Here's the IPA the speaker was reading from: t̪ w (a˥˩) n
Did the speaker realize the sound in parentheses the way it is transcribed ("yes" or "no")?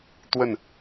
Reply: no